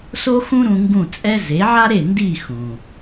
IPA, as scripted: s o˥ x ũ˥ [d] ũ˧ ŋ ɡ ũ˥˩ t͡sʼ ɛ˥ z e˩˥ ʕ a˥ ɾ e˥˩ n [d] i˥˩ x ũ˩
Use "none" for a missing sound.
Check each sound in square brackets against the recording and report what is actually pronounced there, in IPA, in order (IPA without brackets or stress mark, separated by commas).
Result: ɾ, d